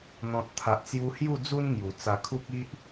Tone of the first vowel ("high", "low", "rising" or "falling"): low